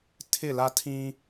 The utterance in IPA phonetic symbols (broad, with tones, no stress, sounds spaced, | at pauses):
tʰ ɪ˦˨ l a˦ tʰ ĩ˦